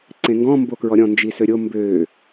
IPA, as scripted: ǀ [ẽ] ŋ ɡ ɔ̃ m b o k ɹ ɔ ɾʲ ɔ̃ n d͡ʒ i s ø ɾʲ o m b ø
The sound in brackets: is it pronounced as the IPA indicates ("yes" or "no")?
yes